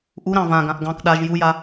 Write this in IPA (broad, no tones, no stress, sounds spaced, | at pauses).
ʔ u ɾ ɑ̃ v ã ɡ ã ʔ ɡ ɑ̃ k ɗ a ʒ j u j a